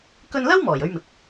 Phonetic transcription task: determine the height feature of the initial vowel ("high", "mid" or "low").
mid